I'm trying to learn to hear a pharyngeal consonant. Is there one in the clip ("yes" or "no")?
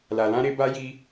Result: no